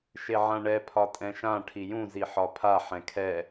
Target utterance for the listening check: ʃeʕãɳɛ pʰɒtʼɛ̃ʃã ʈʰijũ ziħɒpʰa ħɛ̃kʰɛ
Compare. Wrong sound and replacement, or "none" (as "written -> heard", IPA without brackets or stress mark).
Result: none